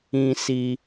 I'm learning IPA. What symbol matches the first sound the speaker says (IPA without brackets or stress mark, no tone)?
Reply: ĩ